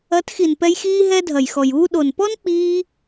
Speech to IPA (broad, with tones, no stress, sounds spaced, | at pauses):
ɐ˨˦ t x i˨ n p ɛ˧ j x iː˦ ɦ ɛ˦ dʱ ɐ˨ j x ɔ˨ j uː˦ ɗ o˨ n p ɔ˦ n k͡p iː˧